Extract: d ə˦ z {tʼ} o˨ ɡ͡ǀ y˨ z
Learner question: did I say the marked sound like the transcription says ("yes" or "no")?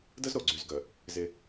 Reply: no